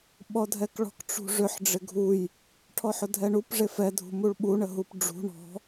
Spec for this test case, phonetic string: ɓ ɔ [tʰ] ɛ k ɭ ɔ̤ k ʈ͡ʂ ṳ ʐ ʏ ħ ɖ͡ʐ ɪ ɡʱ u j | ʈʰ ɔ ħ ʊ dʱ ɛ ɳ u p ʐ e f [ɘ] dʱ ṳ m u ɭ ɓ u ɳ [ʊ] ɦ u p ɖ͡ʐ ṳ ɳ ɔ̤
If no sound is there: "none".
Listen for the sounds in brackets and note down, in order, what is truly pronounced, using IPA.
dʱ, ɛ, ə

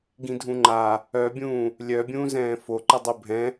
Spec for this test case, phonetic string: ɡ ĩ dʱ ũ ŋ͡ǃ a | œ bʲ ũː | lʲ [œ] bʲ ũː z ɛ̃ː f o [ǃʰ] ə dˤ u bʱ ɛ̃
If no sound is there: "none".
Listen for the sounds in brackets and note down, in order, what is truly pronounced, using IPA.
œ, ǃ

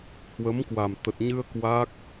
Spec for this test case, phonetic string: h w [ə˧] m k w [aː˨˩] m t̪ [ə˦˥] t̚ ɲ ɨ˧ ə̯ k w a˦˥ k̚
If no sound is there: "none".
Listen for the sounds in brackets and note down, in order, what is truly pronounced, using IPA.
ə˨˦, a˨˩, ə˨˩

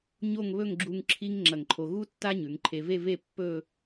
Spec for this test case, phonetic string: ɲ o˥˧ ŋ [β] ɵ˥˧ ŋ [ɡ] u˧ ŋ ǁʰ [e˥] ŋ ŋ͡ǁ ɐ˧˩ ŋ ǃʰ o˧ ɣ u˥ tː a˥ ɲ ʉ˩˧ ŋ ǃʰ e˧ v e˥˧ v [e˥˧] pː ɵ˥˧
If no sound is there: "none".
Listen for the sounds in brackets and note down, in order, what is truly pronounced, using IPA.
β, ɡ͡ǁ, i˥, e˥˧

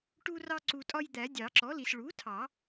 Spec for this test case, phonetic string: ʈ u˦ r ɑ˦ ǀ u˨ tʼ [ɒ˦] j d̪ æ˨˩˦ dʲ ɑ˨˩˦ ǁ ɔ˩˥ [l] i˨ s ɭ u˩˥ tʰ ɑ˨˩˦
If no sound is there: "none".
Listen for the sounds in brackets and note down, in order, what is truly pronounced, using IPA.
ɒ˦, l

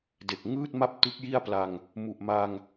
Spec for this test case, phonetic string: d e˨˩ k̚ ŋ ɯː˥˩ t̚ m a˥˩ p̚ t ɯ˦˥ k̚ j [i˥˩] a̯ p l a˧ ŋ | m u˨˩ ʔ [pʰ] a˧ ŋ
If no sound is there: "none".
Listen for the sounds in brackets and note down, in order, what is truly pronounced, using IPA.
i˥˩, m

